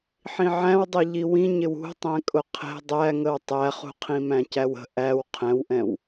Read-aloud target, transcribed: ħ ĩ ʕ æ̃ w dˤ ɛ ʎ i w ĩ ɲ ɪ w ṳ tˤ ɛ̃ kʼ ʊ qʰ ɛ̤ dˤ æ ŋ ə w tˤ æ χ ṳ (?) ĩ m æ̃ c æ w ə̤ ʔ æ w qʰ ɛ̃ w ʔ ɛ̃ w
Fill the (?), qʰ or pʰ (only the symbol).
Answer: qʰ